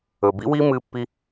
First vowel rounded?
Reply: yes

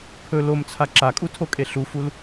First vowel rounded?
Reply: yes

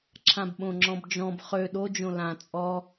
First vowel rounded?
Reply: no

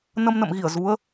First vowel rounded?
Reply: no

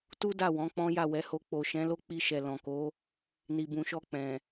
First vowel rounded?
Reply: yes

